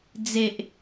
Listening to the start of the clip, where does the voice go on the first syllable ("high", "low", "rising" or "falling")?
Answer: low